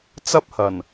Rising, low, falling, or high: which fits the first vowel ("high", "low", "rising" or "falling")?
high